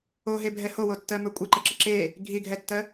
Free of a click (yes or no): no